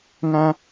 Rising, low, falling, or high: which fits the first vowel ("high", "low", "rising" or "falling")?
high